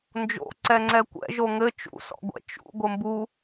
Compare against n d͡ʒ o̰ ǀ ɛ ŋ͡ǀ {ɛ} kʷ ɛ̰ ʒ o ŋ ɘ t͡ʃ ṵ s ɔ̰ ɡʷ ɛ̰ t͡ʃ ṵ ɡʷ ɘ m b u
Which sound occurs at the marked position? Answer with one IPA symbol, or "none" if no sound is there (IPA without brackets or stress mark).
ɛ